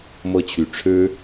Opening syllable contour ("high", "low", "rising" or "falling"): high